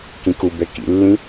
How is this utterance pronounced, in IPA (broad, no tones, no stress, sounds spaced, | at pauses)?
k ĩ k u b ɛ k ḭ lː ĩ